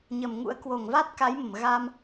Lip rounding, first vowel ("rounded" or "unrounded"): unrounded